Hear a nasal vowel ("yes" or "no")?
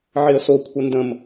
yes